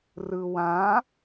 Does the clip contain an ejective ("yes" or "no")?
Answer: no